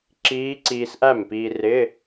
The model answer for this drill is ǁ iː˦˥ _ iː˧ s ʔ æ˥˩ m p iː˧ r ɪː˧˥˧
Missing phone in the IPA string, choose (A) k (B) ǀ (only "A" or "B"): B